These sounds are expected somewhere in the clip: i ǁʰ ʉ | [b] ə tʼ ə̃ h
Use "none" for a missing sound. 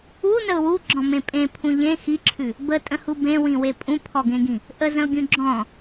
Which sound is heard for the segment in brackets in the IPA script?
b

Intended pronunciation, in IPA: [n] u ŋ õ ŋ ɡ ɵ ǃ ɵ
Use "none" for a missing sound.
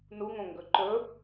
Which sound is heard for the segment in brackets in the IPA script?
n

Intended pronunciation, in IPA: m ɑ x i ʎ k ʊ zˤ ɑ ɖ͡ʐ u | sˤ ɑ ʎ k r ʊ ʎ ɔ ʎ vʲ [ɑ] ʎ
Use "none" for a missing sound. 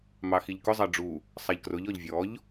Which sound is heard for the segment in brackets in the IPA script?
ɔ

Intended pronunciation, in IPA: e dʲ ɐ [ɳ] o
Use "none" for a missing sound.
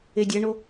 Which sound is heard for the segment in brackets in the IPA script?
ɳ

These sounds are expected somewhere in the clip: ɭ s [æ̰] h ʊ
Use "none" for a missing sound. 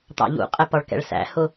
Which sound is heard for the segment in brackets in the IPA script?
æ̰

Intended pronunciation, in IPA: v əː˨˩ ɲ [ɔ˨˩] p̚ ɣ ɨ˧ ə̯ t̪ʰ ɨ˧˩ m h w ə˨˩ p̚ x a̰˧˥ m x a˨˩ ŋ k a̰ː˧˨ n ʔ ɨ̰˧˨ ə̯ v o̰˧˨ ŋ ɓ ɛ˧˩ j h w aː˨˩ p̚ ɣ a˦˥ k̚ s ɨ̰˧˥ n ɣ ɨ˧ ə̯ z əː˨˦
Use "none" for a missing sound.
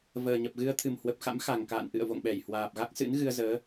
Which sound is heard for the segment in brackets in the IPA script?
ə˨˩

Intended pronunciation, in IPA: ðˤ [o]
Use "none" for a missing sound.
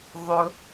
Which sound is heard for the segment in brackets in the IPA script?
ɵ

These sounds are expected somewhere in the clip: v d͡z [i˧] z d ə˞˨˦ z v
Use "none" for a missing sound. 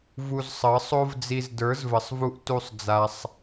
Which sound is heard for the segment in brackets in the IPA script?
i˧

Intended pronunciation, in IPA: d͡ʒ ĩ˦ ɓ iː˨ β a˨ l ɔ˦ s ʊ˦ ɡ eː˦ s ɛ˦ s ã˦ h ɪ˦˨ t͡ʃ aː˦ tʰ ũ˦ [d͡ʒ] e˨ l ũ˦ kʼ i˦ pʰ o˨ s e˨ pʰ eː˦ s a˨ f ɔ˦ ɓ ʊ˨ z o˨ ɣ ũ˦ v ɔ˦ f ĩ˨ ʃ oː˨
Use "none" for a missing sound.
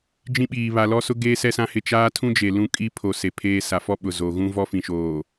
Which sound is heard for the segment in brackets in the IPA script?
d͡ʒ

